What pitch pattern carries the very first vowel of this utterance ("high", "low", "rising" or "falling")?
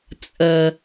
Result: low